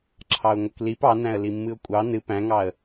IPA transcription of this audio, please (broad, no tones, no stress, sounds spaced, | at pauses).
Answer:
ǁʰ ɑ ʊ̯ ŋʷ ʌ k l i p ɑ n æ̃ ə̯ l i mː ɨ ʊ̯ kʷʼ ɑ n ɨ p æ̃ ŋ ɑ ə̯